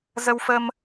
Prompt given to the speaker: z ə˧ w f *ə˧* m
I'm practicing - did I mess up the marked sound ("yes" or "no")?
no